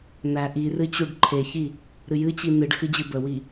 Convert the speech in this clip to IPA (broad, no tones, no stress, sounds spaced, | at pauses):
n æ ʔ i r ɨ t͡ɕ u ɖ ǃʰ e ç i | ɾ ɨ j ɨ t͡ɕ i n ɨ ɖ x ɨ d͡ʑ ɨ b ə w i